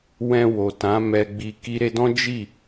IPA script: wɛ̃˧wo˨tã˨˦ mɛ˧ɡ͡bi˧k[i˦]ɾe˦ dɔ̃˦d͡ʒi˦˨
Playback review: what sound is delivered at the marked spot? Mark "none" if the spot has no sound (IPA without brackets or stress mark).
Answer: i˦